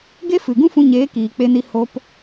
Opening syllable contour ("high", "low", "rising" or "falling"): high